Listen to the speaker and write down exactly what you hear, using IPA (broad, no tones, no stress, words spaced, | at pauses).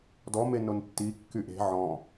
dɔme nontːikːy ʔe̤ ʕɔ̃